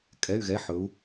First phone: kʼ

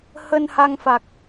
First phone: h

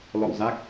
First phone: l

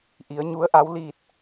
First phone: ʔ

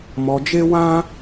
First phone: m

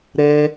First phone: ɾ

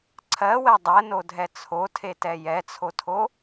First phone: ǀʰ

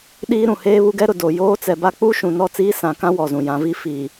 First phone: ɗ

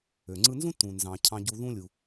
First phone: ø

